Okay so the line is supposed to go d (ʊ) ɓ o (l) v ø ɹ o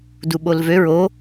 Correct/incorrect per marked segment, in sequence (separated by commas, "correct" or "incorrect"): incorrect, correct